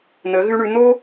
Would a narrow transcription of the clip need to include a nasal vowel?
no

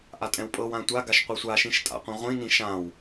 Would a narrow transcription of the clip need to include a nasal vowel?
yes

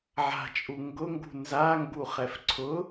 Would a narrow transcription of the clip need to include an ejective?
yes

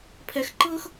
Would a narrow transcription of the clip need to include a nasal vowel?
no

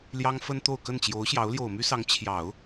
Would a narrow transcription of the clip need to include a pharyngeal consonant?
no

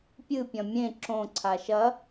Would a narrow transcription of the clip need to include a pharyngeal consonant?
no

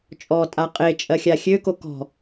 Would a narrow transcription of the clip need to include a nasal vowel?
no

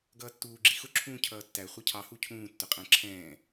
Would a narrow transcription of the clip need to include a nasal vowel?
yes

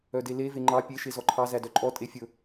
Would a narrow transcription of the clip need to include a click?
yes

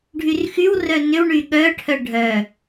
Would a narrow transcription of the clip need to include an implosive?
yes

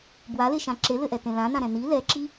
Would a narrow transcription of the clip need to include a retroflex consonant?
no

